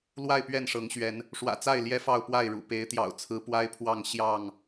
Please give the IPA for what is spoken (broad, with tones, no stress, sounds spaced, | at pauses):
l w a˥˨ ɪ̯ p ɥ ɛ˥˨ n ʂ ɤ˨˦ ŋ ɕ ɥ ɛ˨˦ n | ʂ w ä̰˨˩ t͡s a˥˨ ɪ̯ l j ɛ˦ f ɑ˥˨ ʊ̯ p w a˥˨ ɪ̯ ɻ ṵ˨˩ p e˨˦ ɪ̯ t̪ j ɑ̰˨˩ ʊ̯ t͡sʰ ɹ̩˨˦ p w a˦ ɪ̯ pʰ w ɑ˥˨ ŋ ɕ j ɑ˥˨ ŋ